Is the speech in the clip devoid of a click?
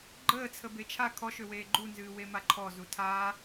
no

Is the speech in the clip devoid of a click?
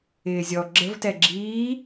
no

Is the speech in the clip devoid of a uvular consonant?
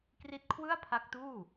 yes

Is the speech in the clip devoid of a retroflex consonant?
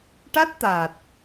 no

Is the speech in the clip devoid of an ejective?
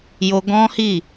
yes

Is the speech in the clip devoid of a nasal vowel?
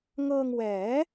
yes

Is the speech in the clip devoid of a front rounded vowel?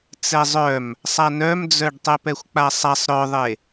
no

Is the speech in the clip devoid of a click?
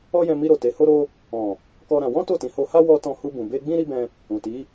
yes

